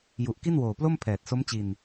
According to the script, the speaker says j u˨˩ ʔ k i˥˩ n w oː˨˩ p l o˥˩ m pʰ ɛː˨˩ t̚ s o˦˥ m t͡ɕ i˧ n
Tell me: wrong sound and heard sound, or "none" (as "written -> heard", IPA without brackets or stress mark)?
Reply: none